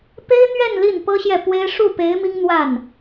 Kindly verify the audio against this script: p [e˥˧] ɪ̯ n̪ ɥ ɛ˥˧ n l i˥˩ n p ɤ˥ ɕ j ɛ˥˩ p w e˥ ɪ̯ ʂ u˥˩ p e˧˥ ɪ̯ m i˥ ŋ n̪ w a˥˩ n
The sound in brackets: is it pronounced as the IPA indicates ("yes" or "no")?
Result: no